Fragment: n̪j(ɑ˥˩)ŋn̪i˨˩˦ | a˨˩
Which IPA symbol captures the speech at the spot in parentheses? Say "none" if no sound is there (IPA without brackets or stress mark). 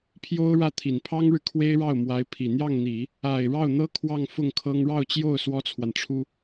ɑ˥˩